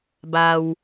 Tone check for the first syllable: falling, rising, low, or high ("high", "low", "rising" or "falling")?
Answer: low